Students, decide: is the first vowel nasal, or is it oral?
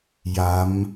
oral